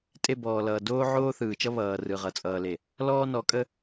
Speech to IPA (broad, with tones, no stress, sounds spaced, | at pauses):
tʼ e˦˨ b ɔː˨ l ʌː˨ d oː˦ ʕ oː˦ θ ɯː˨ t͡ʃ ʌ˦ β ʌː˨ r ɯ˨ ʁ ʌ˨ t͡sʼ ʌː˨ l e˨ | l ɔː˦ n ɔ˨˦ kʼ ə˦